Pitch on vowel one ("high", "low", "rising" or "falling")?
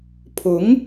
rising